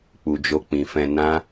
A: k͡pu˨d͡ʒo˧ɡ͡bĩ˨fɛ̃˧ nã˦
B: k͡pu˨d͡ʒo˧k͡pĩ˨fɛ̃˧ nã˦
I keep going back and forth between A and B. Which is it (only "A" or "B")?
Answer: B